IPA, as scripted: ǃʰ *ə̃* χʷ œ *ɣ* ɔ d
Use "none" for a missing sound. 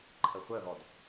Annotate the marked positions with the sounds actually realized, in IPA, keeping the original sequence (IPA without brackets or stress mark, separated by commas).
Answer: ə, ɣ